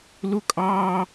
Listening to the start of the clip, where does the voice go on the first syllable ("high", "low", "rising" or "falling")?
high